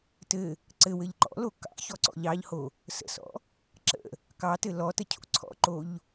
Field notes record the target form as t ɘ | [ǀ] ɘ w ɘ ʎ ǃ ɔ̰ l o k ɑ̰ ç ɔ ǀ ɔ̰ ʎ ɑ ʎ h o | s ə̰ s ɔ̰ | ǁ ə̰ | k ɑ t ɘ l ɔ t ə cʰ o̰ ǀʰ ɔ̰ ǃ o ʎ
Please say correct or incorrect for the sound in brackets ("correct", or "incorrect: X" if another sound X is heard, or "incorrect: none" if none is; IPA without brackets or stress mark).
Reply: correct